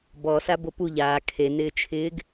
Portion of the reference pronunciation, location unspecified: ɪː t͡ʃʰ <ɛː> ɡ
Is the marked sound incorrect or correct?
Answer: incorrect